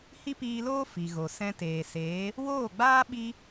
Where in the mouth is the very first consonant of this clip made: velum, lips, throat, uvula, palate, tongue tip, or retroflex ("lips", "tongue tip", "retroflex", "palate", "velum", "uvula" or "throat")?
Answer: throat